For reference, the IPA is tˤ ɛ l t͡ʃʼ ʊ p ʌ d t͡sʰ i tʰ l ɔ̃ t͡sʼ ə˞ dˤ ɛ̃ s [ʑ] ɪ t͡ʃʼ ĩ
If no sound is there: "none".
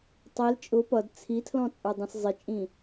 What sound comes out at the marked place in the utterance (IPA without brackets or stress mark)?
zˤ